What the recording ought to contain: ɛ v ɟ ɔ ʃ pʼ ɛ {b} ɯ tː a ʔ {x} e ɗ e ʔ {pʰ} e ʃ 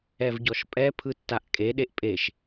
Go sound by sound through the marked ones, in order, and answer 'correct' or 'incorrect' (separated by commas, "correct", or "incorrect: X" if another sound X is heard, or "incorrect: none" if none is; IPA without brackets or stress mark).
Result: incorrect: pʰ, incorrect: kʼ, incorrect: pʼ